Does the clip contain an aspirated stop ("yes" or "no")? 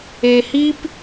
no